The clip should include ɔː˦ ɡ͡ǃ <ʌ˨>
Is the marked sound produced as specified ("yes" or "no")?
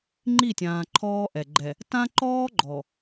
no